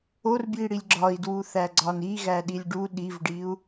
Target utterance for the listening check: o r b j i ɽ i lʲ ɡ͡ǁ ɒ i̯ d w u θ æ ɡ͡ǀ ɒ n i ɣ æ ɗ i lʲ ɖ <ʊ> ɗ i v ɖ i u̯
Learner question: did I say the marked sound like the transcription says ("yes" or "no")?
no